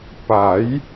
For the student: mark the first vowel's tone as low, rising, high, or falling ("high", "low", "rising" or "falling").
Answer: rising